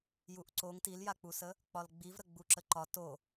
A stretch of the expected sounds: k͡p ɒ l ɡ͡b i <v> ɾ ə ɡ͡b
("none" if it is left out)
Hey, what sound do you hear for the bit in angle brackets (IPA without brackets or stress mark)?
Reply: v